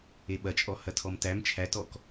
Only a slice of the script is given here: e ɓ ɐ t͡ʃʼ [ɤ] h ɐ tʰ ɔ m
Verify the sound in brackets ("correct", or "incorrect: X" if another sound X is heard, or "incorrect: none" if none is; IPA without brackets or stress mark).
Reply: incorrect: ɔ